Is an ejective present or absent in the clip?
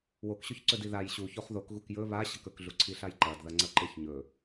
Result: absent